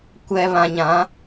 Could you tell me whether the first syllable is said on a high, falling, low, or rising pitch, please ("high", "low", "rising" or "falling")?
low